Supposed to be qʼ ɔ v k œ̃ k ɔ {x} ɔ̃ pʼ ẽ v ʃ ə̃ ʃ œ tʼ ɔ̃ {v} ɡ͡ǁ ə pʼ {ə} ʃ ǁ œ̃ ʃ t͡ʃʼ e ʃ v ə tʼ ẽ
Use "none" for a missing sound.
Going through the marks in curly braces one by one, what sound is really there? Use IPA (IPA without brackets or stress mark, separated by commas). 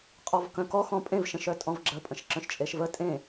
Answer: x, v, ə̃